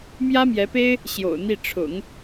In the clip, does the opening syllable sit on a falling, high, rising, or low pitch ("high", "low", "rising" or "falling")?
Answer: high